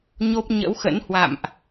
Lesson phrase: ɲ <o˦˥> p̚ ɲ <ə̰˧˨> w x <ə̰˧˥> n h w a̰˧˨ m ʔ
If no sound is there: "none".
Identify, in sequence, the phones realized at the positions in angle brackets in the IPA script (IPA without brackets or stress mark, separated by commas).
o˦˥, ə̰˧˥, ə̰˧˥